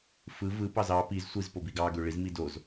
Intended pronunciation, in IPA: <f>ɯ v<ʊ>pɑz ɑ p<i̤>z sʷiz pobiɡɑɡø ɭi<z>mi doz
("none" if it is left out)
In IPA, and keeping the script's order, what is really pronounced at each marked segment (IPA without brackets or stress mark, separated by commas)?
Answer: f, ɯ, i, z